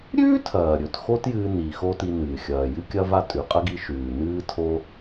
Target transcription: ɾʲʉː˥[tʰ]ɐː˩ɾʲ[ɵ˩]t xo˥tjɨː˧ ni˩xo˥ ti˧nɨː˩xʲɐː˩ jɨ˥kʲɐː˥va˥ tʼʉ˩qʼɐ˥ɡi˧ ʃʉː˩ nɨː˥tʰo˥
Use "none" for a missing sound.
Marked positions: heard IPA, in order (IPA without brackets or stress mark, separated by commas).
tʰ, ɵ˩